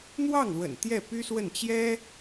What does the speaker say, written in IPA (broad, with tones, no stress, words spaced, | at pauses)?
n̪wɑ˥˩ŋlwə̰˨˩n t̪jɛ˥˩py˥swə˥˩n t͡ɕjɛ˥